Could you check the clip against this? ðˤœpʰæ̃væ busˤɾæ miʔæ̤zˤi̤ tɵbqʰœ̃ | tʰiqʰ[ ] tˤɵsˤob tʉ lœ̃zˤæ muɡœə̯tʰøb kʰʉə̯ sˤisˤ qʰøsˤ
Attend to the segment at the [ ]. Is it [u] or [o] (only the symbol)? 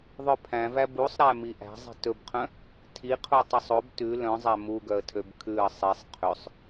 u